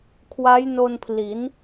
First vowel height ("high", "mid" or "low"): low